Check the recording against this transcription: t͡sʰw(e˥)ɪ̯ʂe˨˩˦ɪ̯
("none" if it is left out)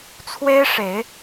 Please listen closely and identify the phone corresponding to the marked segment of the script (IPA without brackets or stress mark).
e˥